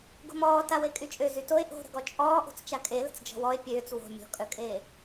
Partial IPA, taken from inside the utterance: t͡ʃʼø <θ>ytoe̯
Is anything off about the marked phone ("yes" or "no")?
yes